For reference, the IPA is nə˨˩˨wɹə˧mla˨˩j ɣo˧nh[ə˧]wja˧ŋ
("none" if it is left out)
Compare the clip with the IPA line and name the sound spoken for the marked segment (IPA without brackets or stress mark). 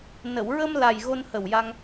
ə˨˩